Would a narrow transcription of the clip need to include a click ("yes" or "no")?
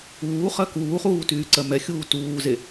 yes